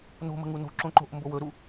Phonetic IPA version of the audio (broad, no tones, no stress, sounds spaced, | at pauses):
n o̤ m ə̤ ŋ u n o̤ ǁ õ ǃ o̤ ʔ m b o w ɵ ɾ u